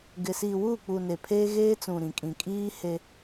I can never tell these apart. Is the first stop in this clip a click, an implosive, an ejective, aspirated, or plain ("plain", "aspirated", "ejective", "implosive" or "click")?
plain